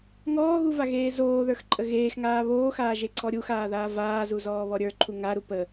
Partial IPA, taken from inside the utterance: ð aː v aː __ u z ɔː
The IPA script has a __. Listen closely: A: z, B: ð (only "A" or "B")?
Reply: A